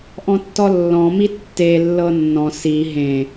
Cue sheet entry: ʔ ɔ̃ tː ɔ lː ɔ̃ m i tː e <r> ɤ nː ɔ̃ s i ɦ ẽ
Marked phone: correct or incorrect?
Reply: incorrect